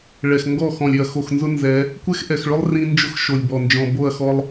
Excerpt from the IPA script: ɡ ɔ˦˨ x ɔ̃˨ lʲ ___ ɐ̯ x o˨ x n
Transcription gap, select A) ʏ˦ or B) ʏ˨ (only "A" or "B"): B